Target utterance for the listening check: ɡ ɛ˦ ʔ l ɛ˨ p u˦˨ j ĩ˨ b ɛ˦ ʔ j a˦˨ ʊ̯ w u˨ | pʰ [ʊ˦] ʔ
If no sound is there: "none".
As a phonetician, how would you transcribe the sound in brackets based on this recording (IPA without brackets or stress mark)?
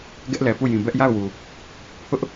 ʊ˦